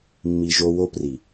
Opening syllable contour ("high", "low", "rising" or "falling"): low